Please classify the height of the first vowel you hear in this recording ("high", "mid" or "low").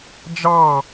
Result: low